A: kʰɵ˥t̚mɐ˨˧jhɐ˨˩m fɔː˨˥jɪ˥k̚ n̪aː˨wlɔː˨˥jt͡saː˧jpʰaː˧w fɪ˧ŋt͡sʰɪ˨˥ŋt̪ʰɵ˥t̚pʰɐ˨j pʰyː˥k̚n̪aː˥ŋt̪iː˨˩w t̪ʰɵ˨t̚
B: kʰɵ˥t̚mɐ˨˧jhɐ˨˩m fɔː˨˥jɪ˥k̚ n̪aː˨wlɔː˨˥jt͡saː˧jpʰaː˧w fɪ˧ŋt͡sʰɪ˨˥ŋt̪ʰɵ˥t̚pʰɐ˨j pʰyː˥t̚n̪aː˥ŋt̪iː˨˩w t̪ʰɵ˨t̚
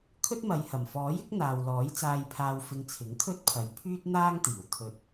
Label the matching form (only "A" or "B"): B